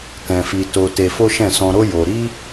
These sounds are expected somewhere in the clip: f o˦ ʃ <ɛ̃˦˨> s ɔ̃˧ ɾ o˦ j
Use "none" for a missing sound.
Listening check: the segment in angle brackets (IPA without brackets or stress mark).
ɛ̃˦˨